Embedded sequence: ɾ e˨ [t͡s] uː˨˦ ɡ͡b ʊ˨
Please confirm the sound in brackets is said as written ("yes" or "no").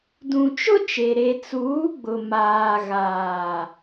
yes